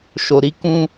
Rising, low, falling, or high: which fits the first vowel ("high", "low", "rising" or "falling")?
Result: low